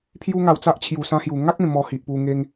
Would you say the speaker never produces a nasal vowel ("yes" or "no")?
no